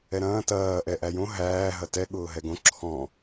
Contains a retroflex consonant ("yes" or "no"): no